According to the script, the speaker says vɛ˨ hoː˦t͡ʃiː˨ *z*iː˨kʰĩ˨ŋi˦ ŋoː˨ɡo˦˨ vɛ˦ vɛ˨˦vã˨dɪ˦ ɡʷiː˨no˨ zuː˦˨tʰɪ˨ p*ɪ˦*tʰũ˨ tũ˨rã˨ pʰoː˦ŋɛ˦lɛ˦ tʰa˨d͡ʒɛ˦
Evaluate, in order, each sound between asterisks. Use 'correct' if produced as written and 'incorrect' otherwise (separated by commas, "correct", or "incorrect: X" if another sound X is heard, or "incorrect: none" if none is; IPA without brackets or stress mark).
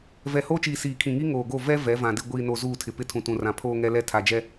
incorrect: s, correct